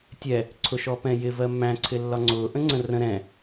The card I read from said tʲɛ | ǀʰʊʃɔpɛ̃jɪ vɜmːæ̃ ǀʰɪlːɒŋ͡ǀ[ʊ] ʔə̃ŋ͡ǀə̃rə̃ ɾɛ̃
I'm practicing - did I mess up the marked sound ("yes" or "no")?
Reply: yes